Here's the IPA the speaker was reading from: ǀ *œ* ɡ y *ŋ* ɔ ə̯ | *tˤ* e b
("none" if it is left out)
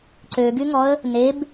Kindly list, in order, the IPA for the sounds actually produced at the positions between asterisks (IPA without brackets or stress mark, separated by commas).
ø, ŋ, n